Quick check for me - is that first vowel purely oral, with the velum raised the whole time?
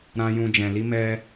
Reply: no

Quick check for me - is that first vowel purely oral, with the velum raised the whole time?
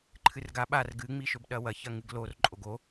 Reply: yes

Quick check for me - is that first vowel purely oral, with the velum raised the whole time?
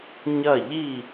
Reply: yes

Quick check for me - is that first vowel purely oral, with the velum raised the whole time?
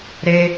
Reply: yes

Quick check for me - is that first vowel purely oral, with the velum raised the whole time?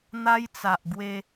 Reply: yes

